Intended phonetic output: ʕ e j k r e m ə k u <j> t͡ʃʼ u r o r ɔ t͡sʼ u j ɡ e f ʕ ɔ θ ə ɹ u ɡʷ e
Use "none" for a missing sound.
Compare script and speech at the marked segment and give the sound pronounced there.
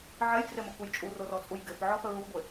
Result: j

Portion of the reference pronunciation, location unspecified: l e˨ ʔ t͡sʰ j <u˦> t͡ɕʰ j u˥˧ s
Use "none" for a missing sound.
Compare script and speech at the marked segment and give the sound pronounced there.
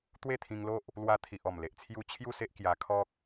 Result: u˦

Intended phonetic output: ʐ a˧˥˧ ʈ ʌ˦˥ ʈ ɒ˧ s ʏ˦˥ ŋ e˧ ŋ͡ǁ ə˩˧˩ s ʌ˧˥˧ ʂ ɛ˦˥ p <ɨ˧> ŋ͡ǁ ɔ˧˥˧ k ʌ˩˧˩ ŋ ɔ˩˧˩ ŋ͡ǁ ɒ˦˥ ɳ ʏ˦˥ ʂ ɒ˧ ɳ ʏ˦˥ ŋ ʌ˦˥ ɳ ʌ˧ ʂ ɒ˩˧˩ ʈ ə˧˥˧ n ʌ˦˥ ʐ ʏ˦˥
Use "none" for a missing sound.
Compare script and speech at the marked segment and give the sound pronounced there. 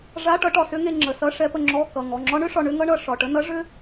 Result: ə˧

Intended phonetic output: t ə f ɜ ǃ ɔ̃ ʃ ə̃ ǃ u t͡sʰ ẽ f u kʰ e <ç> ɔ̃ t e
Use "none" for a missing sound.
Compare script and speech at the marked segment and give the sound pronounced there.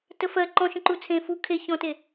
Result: ç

